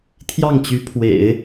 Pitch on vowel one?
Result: falling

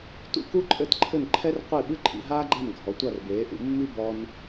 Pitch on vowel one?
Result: falling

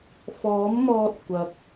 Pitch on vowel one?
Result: rising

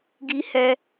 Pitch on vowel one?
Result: high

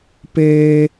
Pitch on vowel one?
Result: high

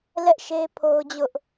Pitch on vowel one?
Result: high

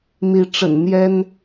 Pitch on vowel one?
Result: rising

